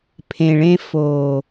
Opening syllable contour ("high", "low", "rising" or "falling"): low